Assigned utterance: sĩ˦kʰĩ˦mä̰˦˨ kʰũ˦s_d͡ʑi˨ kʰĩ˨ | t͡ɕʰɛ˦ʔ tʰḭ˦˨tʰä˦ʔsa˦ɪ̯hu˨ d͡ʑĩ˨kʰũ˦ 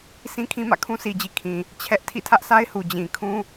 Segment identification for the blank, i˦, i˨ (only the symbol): i˨